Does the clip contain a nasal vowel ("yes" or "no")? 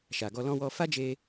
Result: yes